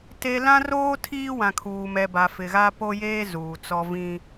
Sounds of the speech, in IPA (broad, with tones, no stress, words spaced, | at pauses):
te˦ lã˦roː˦ tʰiː˦wã˨ kʰuː˨mɛ˨ba˨ fɪ˨ɣa˦po˦jeː˦ zuː˨t͡sɔ˦ vĩ˦